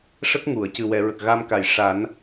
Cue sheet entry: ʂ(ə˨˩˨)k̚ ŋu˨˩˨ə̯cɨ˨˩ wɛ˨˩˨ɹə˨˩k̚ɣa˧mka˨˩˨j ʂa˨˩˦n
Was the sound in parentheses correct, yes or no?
no